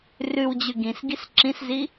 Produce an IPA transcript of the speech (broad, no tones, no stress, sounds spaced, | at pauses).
r ʉ w d͡ʑ ʉ ɡ ĩ s ɡ i s ǁ ĩ s z i